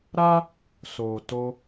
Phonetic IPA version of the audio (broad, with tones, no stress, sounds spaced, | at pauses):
ɾ a˦ | s o˨ t o˧